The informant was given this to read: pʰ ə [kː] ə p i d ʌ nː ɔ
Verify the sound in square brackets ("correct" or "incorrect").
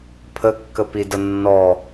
correct